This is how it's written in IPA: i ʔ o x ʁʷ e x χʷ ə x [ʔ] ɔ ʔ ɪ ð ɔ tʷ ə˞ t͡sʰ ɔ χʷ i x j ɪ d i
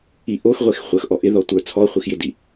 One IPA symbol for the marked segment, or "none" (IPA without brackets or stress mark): ʔ